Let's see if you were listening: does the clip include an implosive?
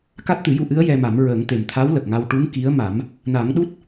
yes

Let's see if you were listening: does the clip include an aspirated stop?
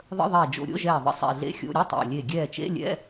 no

